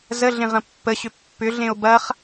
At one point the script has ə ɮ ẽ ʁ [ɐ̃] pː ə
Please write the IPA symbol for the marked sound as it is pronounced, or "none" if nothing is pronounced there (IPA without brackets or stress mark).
ɐ̃